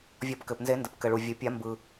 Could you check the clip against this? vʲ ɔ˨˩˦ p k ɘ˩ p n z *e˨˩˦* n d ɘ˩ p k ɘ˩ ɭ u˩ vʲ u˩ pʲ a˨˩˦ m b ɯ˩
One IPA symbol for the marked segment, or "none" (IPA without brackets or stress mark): e˨˩˦